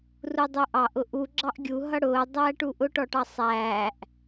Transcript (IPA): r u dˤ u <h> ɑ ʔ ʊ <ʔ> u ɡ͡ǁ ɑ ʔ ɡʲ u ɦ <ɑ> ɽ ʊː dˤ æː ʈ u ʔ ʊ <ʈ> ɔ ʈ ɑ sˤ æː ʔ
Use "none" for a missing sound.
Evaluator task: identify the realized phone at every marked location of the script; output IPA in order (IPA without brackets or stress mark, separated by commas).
ʔ, ʔ, ʌ, ʈ